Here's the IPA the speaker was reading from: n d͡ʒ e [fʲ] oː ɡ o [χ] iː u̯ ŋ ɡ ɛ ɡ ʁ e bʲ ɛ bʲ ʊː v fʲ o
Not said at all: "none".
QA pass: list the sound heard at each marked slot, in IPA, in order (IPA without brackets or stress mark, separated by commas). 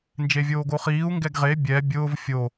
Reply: vʲ, χ